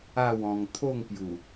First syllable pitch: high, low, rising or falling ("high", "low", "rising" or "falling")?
falling